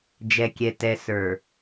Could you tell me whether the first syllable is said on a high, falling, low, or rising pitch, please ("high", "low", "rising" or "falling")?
low